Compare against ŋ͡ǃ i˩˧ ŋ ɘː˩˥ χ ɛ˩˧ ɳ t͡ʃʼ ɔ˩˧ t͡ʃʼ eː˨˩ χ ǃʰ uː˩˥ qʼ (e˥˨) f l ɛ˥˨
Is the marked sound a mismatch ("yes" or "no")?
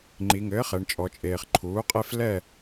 no